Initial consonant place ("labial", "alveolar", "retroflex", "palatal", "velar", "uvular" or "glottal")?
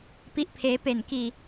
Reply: labial